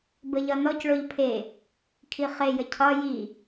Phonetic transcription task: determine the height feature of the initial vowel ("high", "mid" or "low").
mid